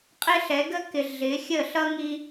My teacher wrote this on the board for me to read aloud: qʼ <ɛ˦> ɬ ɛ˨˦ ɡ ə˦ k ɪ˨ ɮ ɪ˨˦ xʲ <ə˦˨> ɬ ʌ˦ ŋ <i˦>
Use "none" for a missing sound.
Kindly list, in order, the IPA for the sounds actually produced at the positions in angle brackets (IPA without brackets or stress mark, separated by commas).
ɪ˦, ə˦˨, i˦